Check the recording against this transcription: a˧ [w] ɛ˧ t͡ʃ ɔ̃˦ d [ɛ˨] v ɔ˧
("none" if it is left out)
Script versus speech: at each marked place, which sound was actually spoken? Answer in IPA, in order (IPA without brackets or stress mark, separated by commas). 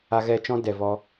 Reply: ɣ, ɛ˨